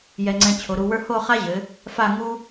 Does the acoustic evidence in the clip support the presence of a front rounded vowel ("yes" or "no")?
no